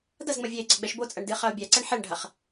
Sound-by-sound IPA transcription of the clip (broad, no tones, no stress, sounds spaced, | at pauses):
d ɐ z ŋ͡m ɐ vʲ ɛ e̯ ɡ͡ǀ ɐ ɡ͡b ɛ ʃ b o t͡sʼ ɐ ɳ d ɨ χ ɐ o̯ bʲ a ǀ ɛ ɳ ħ ɛ ɳ ɖʱ ɐ χ